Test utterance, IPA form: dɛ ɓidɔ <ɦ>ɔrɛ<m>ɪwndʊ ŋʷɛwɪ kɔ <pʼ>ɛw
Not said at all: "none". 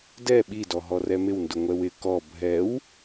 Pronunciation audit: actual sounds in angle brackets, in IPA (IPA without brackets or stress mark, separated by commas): ɦ, m, bʱ